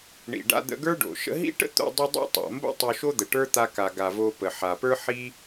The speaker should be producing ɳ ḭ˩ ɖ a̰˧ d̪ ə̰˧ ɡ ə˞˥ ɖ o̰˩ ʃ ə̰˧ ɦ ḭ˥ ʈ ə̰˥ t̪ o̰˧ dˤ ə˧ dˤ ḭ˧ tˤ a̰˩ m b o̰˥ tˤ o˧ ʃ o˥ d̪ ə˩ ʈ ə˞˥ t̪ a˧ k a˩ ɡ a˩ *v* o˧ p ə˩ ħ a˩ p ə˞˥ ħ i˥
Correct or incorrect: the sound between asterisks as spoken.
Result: correct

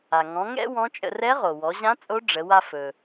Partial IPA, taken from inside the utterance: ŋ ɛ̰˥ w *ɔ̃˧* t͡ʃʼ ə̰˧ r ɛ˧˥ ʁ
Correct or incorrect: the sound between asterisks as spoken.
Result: incorrect: ɔ̃˧˥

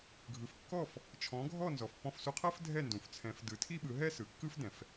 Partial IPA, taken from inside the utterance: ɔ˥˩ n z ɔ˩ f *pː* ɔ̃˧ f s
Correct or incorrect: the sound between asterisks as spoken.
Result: correct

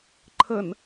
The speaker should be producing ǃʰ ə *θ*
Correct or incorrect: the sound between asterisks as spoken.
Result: incorrect: n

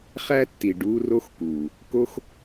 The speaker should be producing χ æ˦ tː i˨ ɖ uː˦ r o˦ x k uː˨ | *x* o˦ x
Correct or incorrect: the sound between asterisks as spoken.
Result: incorrect: k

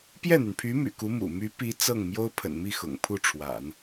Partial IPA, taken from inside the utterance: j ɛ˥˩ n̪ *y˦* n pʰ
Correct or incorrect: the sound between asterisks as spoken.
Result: incorrect: y˩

